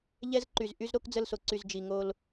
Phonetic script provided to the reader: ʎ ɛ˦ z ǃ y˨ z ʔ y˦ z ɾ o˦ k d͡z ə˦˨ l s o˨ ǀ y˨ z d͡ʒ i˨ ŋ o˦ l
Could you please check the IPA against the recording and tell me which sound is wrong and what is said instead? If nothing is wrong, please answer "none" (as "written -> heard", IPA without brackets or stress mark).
none